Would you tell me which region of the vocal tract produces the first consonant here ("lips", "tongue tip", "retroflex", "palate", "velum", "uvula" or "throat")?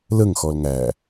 tongue tip